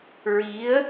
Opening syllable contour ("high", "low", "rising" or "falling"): rising